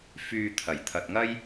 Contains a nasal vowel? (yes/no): no